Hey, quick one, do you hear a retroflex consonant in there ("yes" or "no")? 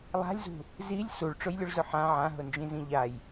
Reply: yes